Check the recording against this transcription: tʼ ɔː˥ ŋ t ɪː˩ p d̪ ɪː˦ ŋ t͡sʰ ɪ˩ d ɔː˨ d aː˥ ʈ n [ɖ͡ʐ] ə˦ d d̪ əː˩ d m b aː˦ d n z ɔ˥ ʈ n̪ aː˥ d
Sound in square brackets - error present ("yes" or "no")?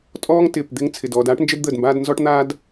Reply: yes